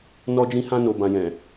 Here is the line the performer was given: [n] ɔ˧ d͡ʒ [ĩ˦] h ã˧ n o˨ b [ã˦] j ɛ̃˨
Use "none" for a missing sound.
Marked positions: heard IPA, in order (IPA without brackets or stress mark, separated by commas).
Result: n, ĩ˧, ã˨